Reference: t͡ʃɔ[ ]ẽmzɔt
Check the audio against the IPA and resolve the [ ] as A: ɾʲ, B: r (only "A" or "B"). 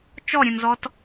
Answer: A